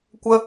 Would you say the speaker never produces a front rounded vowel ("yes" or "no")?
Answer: yes